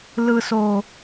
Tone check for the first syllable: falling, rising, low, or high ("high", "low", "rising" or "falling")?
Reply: high